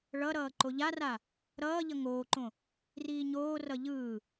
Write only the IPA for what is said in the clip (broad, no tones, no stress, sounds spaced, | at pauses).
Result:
ɭ ʌ ɾ ʌː ǃ o ʎ a r a | ɾ ʌː ʎ ʌ ŋ oː ǃ õ | r iː ɲ oː r ʌ ʎ ɯː